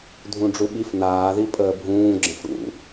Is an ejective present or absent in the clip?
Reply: present